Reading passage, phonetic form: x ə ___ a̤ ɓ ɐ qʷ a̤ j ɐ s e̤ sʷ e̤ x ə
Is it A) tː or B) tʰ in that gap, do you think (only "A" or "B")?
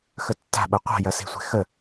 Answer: A